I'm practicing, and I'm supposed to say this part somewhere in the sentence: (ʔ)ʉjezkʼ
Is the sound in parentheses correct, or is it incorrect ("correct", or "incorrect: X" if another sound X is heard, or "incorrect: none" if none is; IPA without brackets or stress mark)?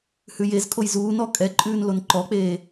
incorrect: h